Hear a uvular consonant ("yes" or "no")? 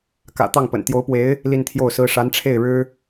no